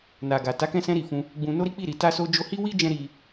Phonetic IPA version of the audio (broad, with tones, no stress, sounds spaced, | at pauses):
n a˨ ɡ a˨ t a˨˦ k ɛ̃˧ s ɛ̃˧ ɾ i˨ f ũ˧ | ɡ͡b ũ˧ n o˦ ɾ i˦ k͡p i˦˨ ɾ i˨ t a˧ s o˧ d͡ʒ o˧ h i˦ w i˦ d͡ʒ ɛ̃˧ ɾ i˧